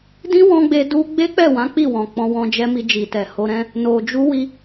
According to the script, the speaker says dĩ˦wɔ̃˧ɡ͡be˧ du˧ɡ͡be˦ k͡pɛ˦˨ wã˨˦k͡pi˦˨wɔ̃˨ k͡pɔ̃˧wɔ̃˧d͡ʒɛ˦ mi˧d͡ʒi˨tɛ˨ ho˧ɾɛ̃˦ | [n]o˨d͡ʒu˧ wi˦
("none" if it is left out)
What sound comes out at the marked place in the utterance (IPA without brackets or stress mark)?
n